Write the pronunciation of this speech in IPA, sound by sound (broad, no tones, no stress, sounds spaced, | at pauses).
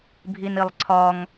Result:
bʱ i n i lˠ ǀʰ ɒ ŋ